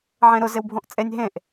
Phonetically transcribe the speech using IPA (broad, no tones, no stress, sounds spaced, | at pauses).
ʕ ẽ ɾ ʊ z ɪ w bʱ õ ʔ t͡sʼ e nʲ ɦ ẽ ʔ